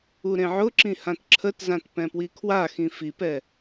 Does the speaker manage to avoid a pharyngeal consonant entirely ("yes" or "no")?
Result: no